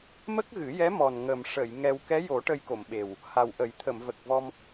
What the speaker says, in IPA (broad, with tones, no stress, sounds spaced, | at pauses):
m ə˦˥ k̚ ɣ ɨ˨˩˦ j ɛ˧˥ m ɔ˨˩ n ŋ ə˨˩ m ʂ ə˨˩˨ j ŋ ɛ˧ w k ɛ˧˥ j o˨˩˦ ʈ ə˧ j k o˨˩˨ m ɓ e˨˩ w | h a˨˩ w ʔ ə˨˩˦ j t̪ʰ ə˨˩˨ m v ə˨˩ k̚ v ɔ˧ m